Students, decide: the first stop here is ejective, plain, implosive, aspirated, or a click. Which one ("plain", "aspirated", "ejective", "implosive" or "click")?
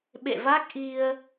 implosive